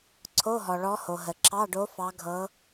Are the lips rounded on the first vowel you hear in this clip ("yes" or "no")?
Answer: yes